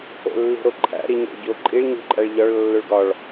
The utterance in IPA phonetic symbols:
o̰lːi̤ɾoǃʰæ̰ ɾiɲḛɭɟoǃʼiɭ ɲṳǃʼæɭʎɒɭ lːoɭɡɒɭ

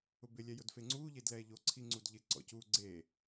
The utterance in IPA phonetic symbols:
ʊbɪ lʲɛjʊdfeŋ͡ǀuː ʎedlɛːʎo ǀʰiŋ͡ǀudʎɪ ǀɔ̰cu ɡ͡ǀe

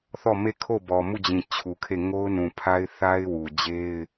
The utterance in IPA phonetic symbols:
θɔ˦˨me˦˨kʰo˦˨ bɔ˨mu˦˨d͡ʑĩ˨ t͡ɕʰu˨kʰe˦˨ ŋo˦ʊ̯nũ˨pʰa˦ɪ̯ θa˦ɪ̯wu˨d͡ʑe˦ɪ̯

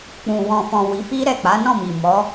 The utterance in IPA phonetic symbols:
k͡pũ˨ wɔ̃˨fɔ̃˨ wi˨˦fi˦ ɾɛ˦˨k͡pa˨˦nɔ̃˦˨mi˨ mɔ˨˦

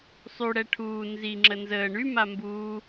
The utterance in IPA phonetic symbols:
sˤyɽɛ ʈʰuː nzi ŋ͡ǁənzəː ɳyma mbuː

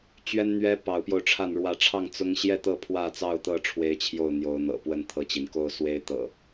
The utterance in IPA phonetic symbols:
t͡ɕɥɛ˦nn̪ɥɛ˦ pɑ˨˦ʊ̯pjo˧ʊ̯ʈ͡ʂʰa˥˨n ɻwä˨˦ʈ͡ʂʰɑ˥˨ŋ t͡sʊ˦ŋ ɕjɛ˥˨t̪ɤ˥˨ pʰwä˥˨t͡sɑ˥˨ʊ̯t̪ɤ˥˨ ʈ͡ʂʰwe˦ɪ̯t͡ɕʰjo˥˨ʊ̯n̪jo˨˦ʊ̯ n̪ɤ̰˨˩pwə˥˨nt̪ʰɤ˥˨t͡ɕi˩n ko˥˨ʊ̯swe˦ɪ̯ t̪ɤ̰˨˩

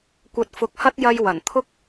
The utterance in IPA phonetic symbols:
kʷɐ˨t̚fʊ˨˥k̚hɐ˥t̚ jɐ˧j wɐ˨˩n t̪ʰʊ˥k̚

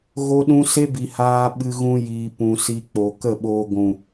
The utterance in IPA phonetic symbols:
ɣo˧ɗũ˧se˦bi˨ haː˧ɓɨ˧ɣũ˧ jiː˨pũ˨si˧ k͡po˨kə˦˨ɓoː˧ ɡʷũ˨

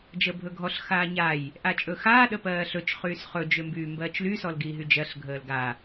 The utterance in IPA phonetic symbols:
d͡ʒəːbʱɵɡʱɔɬ xaːɲaj | ʔat͡ʃʼɵxaː ɗəpɜːɬɵt͡ʃ χyːsχɵ d͡ʒømbyːmbɜːt͡ʃly sɔlɡiːɦyd͡ʒɜɬ ɡʱəːlɡa

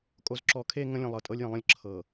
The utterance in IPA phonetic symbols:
kʼo˨zǁɔ˨kʰe˦˨ ŋə̃˦lʲə̃˨ lˠɤ˨tʼɤ˦lʲjə̃˨lˠə̃˦lʲ ǁʰɤ˨

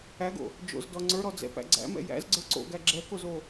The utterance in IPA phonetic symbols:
æɡo̰ | d͡ʒo̰zdɔ ŋ͡ǀə˞ɾɔd͡zɛ̰pæ̰ ɡ͡ǀæ̰mɛ̰ jæ̰zɡ͡ǀə˞ ǀo̰ɡæ ɡ͡ǁɛkozo

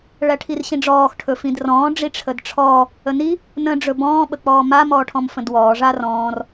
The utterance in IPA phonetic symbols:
ɭæʈʰirɕĩɖ͡ʐɔːx ʈʰɵfĩdrɔ̃ː ɖ͡ʐiʈ͡ʂʰədʈ͡ʂʰɔː | əni | nə̃ ɖ͡ʐɵbɔ̃ː ɓək͡pɔːma mɔːʈʰɔ̃mfə̃dwɔː ʐarɔ̃ːr

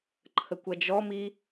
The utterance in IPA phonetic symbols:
ǃʰəkʷɐd͡ʒɔmi

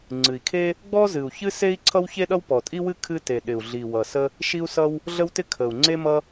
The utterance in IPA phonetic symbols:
ŋ͡ǀɨ˨˩i̯kʰe˥ | ɡ͡bɔ˥zɨ˨˩u̯çɨ˥se˥i̯ ǀʰʌ˥wçe˥ɗʌ˥w pɔ˨˩tʼi˥wɨ˥ kʰɨ˥te˨˩ɗɪ˨˩u̯ɮi˨˩ wʌ˨˩sə˥ | ʃi˥u̯sʌ˥w | ɮə˥wtɪ˥kʰə˨˩u̯ ŋ͡ǀe˥ mʌ˥

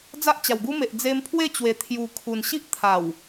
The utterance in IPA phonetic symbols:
d͡za˦ʔt͡ɕa˨˩wɡu˦me˨ʔ d͡ze˧mpʰwe˥˧t͡ɕwe˨˩ t̪ʰju˨˩kʰu˨˩nɕi˦ʔ t̪ʰa˨˩w

